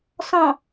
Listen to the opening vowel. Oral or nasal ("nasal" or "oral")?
nasal